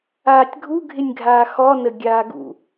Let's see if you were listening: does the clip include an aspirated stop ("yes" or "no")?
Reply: no